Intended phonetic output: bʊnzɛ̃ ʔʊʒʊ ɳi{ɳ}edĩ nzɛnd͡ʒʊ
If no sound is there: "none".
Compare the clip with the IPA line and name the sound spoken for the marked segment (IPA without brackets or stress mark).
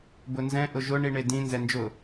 ɳ